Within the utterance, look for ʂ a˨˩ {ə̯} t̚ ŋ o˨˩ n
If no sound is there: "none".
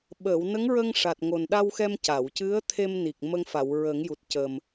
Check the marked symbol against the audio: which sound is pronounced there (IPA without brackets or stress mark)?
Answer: none